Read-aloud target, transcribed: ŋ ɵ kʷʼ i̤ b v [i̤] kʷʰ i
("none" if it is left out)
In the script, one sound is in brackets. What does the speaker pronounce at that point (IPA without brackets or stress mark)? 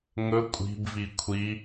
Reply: i